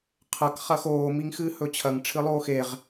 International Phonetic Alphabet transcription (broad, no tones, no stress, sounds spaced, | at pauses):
qʰ ɐ k χ ɐ x oː m i ŋ x ɨː h ɵ t͡ɕʰ ɐ ŋ ʈ͡ʂʰ ɨ lˠ oː x e ʁ